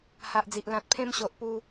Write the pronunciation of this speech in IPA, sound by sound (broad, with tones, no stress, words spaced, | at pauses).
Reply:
ha˨ʔd͡zi˨ʔ lã˨t̚pʰẽ˧mɕo˨ʔ pu˧